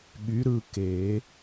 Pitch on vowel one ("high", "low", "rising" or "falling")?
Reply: rising